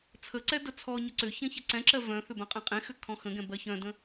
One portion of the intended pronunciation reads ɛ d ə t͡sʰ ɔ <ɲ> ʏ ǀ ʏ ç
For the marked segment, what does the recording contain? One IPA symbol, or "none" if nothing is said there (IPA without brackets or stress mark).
ɲ